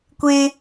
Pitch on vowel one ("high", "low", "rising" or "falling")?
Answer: high